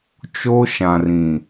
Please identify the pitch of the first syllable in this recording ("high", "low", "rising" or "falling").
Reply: high